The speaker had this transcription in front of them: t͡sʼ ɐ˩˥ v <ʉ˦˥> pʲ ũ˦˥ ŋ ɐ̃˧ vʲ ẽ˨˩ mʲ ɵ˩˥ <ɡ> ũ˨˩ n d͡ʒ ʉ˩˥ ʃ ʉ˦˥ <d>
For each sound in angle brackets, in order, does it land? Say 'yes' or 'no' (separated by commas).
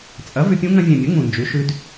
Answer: no, no, yes